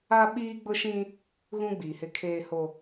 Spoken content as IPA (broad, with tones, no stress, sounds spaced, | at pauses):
a˦ ɓ iː˦ ɡ͡b ʊ˦ ʃ ĩ˦ | ɣ ũ˦ ɡ͡b iː˨ h ɪ˦ kʰ eː˦ h o˦